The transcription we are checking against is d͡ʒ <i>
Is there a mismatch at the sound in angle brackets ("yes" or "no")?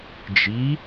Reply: no